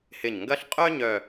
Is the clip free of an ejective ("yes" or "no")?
no